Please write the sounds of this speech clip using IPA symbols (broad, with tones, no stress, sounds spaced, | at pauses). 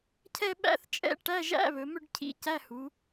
cʰ ɛ˥˧ ɓ æ̰˥˧ θ t͡ʃʼ ɛ̰˥˧ ʈ æ˧˥˧ ʒ æ̰˧˥˧ β ɵ˩˧ m ʏ˥˧ ɖ cʰ ḭ˧˥˧ c æ˧˥˧ h u˩˧